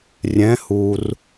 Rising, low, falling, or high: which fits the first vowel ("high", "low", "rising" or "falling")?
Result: rising